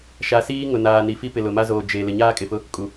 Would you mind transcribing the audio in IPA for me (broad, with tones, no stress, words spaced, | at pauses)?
ʃa˨siː˦ ŋʊ˨naː˨ ni˨fi˦ pɪ˨lʊ˨ma˦ zoː˨d͡ʒe˨ lɪ˨ɲaː˦kʼɪ˨fʊ˦ | kʼu˨